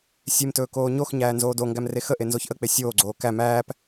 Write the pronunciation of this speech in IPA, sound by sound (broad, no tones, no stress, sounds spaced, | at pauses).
sʲ e m t ɵː k oː ɲ o x ɲ æː n z oː d o ŋ ɡ æ m r e x ə ʔ e n z o ç ʔ ə k͡p e sʲ oː ɡ͡ǀ oː k æ m æː p